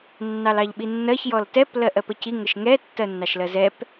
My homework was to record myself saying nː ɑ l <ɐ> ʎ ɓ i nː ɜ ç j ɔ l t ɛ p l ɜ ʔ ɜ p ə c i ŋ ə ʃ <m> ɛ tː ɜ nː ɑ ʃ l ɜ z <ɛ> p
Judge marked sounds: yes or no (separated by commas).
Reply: no, no, yes